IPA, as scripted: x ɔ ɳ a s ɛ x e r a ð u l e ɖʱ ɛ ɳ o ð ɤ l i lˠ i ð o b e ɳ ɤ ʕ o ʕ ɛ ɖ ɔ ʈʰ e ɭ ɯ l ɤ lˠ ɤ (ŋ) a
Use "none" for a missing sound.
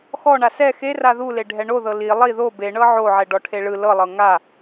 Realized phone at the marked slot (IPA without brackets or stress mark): ŋ